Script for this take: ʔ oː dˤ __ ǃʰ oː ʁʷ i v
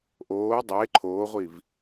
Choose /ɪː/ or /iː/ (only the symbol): ɪː